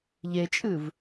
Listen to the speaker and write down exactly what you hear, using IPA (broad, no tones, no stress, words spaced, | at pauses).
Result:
ʎet͡ʃʼɨv